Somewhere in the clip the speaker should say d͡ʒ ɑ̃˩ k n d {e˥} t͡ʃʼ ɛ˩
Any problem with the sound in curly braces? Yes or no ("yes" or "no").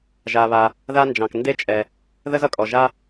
no